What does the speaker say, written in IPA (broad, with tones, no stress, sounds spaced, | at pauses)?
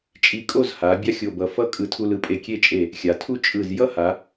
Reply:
t͡ʃʼ i˧ kʼ o˥˧ z h a˩˧ bʲ a˥ xʲ o˧˩ b ʌ˧˩ f ʌ˥ kʼ ɯ˧˩ tʰ u˧ l ɯ˩˧ pʼ e˧˩ kʲ e˥˧ t͡ʃʼ e˧˩ | xʲ a˩˧ tʰ u˥˧ t͡ʃʼ ɯ˧˩ z j ʌ˥ h a˩˧